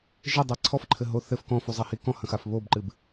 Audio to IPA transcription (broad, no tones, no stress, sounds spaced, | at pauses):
ʒ ɘ dˤ a ǀʰ ɔ f ǃʰ ɘ ɦ o θ ɘ f k ɔ̃ f u zˤ ɐ h i k ɔ̃ h ɐ̃ x a f β o b ǃ ɨ b